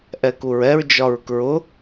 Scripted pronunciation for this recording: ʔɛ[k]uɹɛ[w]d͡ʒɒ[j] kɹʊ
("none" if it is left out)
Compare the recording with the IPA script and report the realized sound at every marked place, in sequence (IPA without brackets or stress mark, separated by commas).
k, ɹ, ɹ